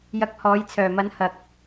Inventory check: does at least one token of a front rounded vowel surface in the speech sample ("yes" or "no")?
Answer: yes